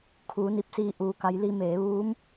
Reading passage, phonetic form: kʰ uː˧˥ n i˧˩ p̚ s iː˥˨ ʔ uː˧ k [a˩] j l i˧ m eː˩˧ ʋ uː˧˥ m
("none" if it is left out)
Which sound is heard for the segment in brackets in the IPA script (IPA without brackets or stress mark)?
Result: a˧˥